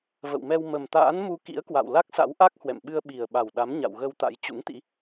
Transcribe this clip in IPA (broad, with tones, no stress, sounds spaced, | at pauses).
v ə̰˧˨ w m ɛ˧ w m ə˨˩ m t̪ a̰ː˧˥ n m u˧ k ḭ˧˥ ə̯ k w a̰˧˨ w l a˦˥ k̚ s a̰˧˥ w ʔ a˦˥ k̚ h w ɛ̰˧˨ m ɓ ɨ˧ ə̯ ɓ i˨˩ ə̯ ɓ a˨˩ w ɗ a˨˦ m ɲ a̰˧˨ w ɣ ə˧ w t̪ a̰˧˥ j t͡ɕ ṵ˧˥ ŋ t̪ ḭ˧˥